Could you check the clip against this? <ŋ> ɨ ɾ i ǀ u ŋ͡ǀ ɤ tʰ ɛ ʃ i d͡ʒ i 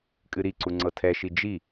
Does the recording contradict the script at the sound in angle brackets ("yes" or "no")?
yes